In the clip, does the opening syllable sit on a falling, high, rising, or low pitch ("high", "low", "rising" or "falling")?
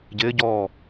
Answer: rising